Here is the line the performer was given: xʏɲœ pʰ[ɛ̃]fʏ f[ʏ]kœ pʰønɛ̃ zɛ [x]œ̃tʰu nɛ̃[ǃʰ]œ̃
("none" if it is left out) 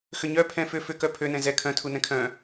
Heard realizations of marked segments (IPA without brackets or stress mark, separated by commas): ɛ̃, ʏ, kʰ, kʰ